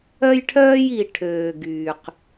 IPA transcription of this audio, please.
œ˦jʈʰœː˦ji˨ ʈʰøː˨ɡyː˨q

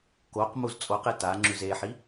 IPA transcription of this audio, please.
koq muzt͡sʼoqe ta ŋ͡ǁʉzeħi

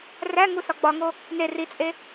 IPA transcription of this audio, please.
ræŋu sɒɡ͡bɒŋo | ne rit͡sʼe

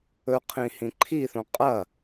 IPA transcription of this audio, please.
ɵqʰĩ hĩǃʰiθõ qʼɐ

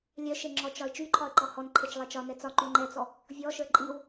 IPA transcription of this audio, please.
lʲœʃe ŋ͡ǁɔt͡ʃɒɪ̯ t͡ʃyǃʰɒə̯ǃɔ hɔnǃʰet͡ʃlˠɛ t͡ʃɒnɛ t͡sɒǃy ŋ͡ǃɛt͡sɔ | vʲɔʃə˞ ǃʼiw

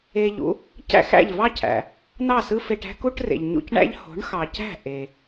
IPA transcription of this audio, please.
e˧ʎṵ˩˥ | cæ̰˥˩xæ̰˥˩ʎvɑ˥cʰæ̰˩ | nɑ˥˩sɯ˥fe˧ʈ æ̤˥ku˥ʈrḛ˩ʎ ɲṵ˧cɳæ̰˥ʎ ho̤˩˥ɳxɑ˩cæ̤˥˩ ʔe˩

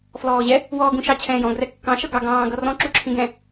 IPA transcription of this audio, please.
flɔːʑɛ | wɔːɡũʃɑ t͡ɕʰɛ̃ːjɔ̃ ɡrɛkːɑ̃ ʃʌɡɑ ɡɑ̃ː ɡʌrɔ̃ ǁuǁʰĩɡɛ̃

